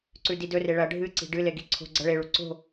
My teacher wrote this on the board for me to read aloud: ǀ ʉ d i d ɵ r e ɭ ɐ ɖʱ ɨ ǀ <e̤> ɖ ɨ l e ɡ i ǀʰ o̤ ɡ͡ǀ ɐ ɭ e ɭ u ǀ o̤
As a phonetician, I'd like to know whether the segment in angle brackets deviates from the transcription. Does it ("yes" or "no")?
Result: yes